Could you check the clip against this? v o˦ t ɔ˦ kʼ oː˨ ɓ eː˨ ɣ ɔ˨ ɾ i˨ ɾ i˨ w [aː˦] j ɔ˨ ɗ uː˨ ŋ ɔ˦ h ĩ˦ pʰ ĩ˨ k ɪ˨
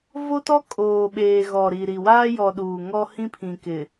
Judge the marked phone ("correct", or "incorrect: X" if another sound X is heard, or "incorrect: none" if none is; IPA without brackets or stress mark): correct